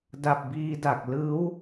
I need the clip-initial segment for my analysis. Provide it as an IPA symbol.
d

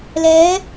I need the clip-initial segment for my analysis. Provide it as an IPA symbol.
l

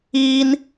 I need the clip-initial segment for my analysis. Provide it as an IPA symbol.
iː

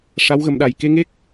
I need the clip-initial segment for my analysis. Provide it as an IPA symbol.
ʂ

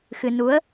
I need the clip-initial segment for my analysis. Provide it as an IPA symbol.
x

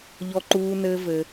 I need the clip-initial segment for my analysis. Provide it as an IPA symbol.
ʎ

